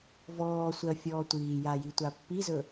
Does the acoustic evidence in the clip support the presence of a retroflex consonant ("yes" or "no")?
no